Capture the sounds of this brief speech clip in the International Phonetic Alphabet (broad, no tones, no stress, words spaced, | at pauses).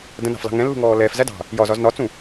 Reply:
də̃nɑ̤flɑ̤ ŋɛ̃lːṳŋɔː lɛːfzædɑ̤ | jɒzɒz nɒt͡sũ